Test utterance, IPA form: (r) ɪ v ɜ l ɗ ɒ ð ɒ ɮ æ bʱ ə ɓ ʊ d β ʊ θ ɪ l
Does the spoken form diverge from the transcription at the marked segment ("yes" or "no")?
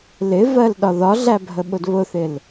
yes